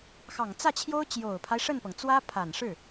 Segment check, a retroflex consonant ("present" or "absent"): present